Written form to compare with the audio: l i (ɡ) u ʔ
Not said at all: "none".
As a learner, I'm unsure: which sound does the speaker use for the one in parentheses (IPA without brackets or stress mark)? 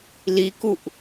k